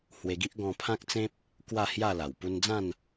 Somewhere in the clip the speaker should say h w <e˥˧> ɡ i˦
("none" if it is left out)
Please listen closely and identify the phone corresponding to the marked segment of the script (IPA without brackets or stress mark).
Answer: e˧